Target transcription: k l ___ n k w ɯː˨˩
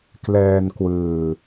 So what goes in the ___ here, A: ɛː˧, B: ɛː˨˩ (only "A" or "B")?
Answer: A